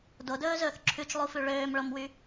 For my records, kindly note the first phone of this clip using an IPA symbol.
d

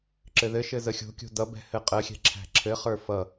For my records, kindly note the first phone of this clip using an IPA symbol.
ǁ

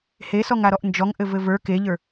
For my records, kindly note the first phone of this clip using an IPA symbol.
h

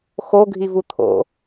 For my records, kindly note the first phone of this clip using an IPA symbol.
x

